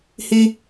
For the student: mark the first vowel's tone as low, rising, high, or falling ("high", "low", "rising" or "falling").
high